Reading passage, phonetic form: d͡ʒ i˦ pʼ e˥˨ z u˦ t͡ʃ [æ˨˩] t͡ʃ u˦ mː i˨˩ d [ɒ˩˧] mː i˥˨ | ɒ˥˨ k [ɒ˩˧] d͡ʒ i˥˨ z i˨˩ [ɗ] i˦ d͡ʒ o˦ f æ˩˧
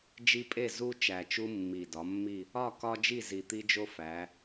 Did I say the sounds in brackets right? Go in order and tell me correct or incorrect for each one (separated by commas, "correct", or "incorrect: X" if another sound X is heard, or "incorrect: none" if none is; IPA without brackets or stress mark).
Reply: correct, correct, incorrect: ɒ˦, incorrect: t̪